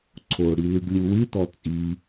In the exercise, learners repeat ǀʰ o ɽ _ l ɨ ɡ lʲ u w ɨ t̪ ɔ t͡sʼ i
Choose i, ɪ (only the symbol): i